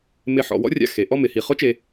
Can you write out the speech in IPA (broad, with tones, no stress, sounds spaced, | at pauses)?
m ɪ˧˩ ħ ɔ̰˩˧ w ɔ̰˥ rʲ a̰˧˩ x e˩˧ ʔ ɔ˥˧ m ɪ˩˧ h i˩˧ χ ʊ˥ t͡ʃ e˧